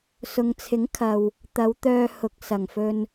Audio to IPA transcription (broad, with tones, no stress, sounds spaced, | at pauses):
s ʊ˨ ŋ t͡sʰ ɪ˨˥ ŋ kʰ ɐ˨ w | t̪ ɐ˨˧ w t̪ œː˧ h ʊ˨ k̚ s ɐ˨˩ ŋ f ɵ˧ n